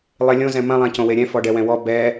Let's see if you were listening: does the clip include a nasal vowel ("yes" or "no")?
yes